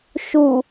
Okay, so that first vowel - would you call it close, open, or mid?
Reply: close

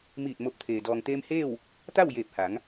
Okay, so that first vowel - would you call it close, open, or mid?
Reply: close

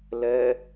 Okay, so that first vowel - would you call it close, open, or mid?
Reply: mid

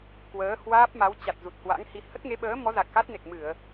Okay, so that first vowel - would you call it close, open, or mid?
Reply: mid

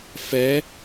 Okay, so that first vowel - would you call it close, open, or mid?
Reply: mid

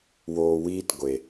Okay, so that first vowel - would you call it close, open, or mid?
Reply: mid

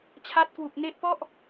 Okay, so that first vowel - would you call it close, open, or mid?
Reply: open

